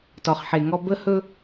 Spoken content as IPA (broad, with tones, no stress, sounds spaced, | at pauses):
t ɔ˨ χ ħ e˨ ŋ ɔ˦ b ə˦ h ɵ˦